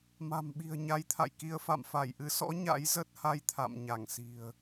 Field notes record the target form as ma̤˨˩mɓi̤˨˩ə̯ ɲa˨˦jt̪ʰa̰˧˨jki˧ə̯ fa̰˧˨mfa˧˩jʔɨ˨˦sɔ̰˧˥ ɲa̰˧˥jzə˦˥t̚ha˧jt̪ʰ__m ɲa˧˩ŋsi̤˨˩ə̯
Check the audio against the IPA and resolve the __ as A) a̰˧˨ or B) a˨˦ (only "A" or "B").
A